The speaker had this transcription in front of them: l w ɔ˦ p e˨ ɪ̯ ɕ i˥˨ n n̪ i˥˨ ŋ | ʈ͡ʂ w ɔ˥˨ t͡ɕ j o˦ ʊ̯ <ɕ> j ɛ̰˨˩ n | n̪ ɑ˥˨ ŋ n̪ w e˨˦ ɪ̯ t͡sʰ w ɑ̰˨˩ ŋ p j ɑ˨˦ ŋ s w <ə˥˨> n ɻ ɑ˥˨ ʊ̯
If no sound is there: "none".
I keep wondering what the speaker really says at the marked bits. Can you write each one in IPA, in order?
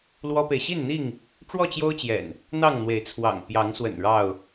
t͡ɕ, ə̰˨˩

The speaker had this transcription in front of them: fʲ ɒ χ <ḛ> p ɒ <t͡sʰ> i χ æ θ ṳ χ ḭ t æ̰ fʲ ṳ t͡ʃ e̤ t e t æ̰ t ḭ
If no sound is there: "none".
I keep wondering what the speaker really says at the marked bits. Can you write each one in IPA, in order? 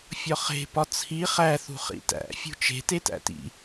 e̤, t͡sʰ

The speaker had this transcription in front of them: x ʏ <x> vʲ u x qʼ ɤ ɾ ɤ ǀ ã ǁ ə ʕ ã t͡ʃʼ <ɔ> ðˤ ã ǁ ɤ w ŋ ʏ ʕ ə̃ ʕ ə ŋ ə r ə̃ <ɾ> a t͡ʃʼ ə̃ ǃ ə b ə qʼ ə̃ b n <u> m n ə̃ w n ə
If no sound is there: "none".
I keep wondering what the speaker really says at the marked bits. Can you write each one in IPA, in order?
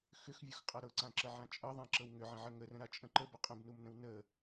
x, ɤ, ɾ, u

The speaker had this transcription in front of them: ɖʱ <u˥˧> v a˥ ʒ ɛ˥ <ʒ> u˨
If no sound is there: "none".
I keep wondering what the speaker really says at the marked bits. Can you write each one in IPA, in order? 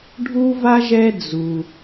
u˥, d͡z

